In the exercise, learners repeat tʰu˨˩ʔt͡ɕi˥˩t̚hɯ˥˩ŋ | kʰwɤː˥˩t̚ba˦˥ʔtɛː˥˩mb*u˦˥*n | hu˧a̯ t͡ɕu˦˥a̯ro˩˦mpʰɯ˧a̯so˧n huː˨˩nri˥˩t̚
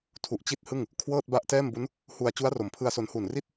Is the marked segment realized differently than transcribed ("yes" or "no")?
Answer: no